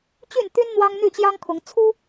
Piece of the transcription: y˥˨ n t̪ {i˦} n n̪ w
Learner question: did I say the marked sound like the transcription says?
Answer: no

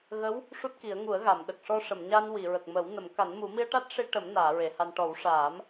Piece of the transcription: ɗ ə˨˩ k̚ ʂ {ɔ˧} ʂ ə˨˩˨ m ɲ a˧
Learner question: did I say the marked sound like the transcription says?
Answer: yes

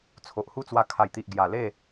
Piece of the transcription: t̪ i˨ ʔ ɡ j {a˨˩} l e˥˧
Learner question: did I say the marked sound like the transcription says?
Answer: yes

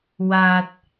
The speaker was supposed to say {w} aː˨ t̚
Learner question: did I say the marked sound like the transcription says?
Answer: yes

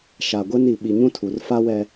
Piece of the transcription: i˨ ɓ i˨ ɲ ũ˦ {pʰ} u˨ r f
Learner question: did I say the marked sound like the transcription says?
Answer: no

